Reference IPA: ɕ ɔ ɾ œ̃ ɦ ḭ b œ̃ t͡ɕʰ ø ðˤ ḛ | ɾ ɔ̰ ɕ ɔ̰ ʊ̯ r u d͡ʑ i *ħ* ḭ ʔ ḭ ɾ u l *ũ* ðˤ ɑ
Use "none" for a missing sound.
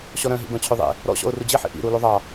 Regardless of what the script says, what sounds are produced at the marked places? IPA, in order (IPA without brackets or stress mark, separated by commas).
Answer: ħ, u